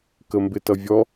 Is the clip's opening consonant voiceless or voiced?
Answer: voiceless